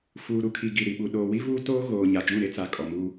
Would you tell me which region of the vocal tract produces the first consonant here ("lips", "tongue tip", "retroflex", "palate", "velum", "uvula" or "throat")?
lips